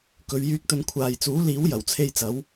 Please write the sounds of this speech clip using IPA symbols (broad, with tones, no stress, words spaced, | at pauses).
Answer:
kɵ˨˧ɥjyː˧k̚t̪ɵ˧n kʷʰaː˨j t͡suː˨˥liː˨˥w jɐ˨˩wt͡sʰe˧jt͡sɐ˨˥w